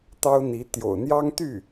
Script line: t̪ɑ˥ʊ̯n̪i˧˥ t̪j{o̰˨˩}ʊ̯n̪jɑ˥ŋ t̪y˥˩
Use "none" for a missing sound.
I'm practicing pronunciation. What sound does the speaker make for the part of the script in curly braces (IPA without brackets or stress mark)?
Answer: o̰˨˩